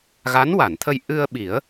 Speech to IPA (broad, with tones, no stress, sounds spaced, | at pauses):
ɣ a˧˥ n w a˨˩˨ n t̪ʰ ə˧ j ʔ ɨ˧ ə̯ ɓ i˨˩˦ ə̯